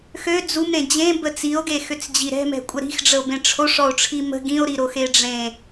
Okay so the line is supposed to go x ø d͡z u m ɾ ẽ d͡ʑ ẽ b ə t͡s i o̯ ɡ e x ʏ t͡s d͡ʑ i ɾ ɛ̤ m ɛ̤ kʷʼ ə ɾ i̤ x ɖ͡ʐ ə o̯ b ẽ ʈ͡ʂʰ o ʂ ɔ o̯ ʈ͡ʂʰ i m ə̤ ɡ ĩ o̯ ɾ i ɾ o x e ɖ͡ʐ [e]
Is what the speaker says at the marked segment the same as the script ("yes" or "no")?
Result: no